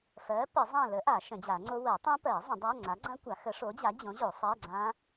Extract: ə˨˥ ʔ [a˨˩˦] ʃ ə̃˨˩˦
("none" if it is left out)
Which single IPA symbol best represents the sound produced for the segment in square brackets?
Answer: a˨˩˦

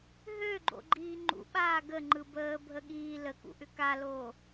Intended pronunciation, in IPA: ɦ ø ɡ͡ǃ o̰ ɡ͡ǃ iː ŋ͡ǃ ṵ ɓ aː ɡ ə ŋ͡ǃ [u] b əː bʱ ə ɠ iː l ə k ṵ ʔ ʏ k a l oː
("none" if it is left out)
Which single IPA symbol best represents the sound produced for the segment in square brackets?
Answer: ɯ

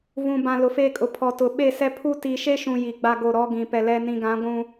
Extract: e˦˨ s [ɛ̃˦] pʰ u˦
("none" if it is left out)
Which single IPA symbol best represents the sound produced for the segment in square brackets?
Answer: ɛ˦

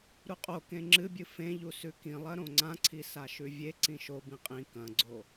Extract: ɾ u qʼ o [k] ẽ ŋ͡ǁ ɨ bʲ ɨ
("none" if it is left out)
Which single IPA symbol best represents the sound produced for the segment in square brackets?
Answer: k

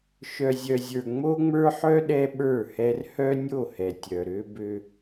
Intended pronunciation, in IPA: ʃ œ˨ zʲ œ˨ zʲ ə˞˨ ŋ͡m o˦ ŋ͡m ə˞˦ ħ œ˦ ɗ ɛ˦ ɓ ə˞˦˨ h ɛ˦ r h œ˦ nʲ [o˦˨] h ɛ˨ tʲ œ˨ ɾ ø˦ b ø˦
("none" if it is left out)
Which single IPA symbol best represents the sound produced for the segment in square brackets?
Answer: o˦˨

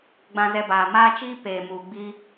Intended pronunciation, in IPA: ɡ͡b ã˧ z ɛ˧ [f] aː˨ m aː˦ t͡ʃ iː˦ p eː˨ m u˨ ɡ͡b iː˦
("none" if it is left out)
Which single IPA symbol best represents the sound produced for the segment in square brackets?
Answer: b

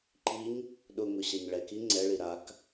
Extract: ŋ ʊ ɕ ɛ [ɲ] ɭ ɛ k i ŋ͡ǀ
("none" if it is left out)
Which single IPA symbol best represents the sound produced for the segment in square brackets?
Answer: ɲ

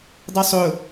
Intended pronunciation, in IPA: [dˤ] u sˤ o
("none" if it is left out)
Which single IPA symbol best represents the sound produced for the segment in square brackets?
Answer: dˤ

